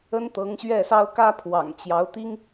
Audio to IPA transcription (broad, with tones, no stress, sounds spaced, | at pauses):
ə˥ n t̪ ɤ˧˥ ŋ ɕ ɥ ɛ˥˩ s ɑ˥ ʊ̯ k ä˥ pʰ w ɑ̰˨˩ ŋ t͡ɕ j ɑ˧˥ ʊ̯ t̪ i˥ ŋ